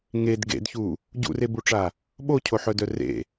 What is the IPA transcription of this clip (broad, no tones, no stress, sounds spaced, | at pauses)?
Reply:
ŋ e d ɡ ḛ d ç u | ɟ ṵ r e b u ʈ͡ʂ a | ɓ o cʰ o ħ œ d œ r ḛ